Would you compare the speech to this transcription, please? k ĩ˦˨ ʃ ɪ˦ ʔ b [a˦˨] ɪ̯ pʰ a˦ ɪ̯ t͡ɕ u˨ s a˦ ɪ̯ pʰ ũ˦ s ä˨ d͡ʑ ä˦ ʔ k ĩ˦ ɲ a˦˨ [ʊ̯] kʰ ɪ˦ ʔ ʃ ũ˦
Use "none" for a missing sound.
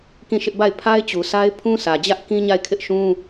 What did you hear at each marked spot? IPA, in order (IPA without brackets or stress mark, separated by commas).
a˦˨, ɪ̯